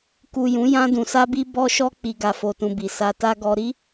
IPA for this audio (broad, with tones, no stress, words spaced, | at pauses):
ku˨ jũ˨˦jã˧ dũ˨sa˧bi˧ bɔ˧ʃɔ˧ k͡pi˨ ɡa˨fo˨tũ˨bi˨ sa˧ta˦ ɡɔ˧ɾi˦